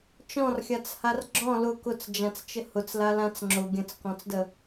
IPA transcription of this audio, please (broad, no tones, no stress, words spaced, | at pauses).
t͡ʃɔ̃rxʲat͡shar ɡ͡ǁɔ̃ lʊ kʊt͡sd͡ʒãt͡st͡ʃə hʊt͡slalãt͡s ŋ͡ǁʊ ɡʲə̃t͡skɔ̃t͡sdə